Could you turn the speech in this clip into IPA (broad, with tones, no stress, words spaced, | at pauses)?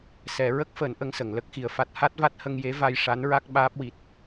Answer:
sɛ˨˩˦ ɹə˦˥k̚fəː˨˩˦n ʔə˧ŋsə˨˩˨ŋ lə˦˥k̚xi˨˩ə̯fa˦˥t̚ ha˦˥t̚va˦˥t̚hə˧ŋje˧˥ va˧jʂa˧˥nɹa˦˥k̚ ɓaː˦˥p̚wi˨˩t̚